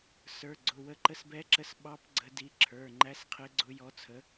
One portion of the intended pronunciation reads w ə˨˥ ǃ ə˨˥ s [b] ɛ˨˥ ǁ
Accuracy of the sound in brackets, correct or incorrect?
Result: correct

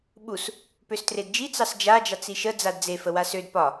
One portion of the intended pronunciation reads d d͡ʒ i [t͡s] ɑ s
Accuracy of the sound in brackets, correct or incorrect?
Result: correct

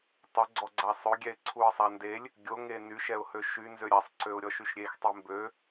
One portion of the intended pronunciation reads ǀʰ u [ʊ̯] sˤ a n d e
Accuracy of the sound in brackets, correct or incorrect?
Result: incorrect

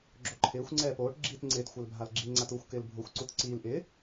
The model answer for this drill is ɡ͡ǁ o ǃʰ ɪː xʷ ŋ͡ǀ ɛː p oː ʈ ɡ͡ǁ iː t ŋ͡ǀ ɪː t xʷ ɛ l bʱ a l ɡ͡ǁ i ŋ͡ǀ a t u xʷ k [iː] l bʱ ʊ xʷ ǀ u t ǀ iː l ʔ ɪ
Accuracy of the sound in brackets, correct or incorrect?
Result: incorrect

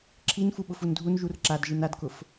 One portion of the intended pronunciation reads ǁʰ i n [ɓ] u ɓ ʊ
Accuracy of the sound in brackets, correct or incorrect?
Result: incorrect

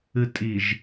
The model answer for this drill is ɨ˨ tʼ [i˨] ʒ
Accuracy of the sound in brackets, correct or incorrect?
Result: correct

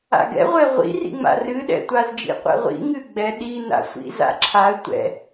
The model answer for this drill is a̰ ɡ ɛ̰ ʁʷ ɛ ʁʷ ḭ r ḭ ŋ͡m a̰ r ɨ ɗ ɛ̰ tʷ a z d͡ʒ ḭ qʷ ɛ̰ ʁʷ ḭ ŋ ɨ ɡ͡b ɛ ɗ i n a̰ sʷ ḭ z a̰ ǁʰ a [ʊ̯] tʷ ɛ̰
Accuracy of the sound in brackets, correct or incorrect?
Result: incorrect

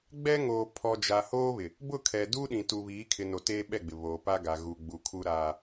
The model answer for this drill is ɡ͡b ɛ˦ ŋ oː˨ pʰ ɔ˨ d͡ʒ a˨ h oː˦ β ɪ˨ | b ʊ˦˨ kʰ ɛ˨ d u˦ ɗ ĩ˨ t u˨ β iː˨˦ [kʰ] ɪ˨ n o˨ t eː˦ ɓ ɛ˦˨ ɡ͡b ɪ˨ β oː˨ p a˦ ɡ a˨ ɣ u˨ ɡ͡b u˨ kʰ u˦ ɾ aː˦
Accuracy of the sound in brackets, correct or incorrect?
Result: correct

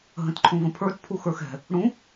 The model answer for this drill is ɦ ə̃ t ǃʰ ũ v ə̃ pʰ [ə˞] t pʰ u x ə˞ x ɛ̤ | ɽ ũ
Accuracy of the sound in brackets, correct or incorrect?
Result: correct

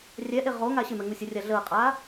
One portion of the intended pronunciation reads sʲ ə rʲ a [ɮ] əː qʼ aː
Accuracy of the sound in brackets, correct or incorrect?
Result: correct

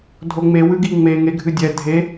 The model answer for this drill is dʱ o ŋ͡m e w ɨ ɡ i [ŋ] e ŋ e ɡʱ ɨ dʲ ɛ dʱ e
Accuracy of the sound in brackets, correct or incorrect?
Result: incorrect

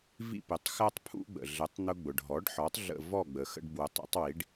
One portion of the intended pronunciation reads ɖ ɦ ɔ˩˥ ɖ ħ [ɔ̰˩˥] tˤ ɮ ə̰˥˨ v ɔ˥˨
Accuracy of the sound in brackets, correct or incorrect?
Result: incorrect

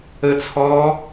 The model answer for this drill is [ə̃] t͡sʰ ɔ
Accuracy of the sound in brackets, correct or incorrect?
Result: incorrect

